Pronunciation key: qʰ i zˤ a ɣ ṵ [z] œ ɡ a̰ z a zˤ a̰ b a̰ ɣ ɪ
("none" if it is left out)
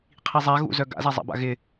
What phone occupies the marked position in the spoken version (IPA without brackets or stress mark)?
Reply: z